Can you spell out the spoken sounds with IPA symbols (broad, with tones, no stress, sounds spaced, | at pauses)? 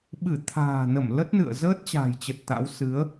ɓ ɨ˧˩ t̪ʰ a̤ː˨˩ n ə˧˩ m l ə˦˥ t̚ n ɨ̰˧˨ ə̯ z əː˦˥ t̚ t͡ɕ a̤ː˨˩ j t͡ɕ ə˨˩ t̚ t̪ a̰˧˥ w s ɨ˨˦ ə̯